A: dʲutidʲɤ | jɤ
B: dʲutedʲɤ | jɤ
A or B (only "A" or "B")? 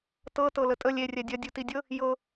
A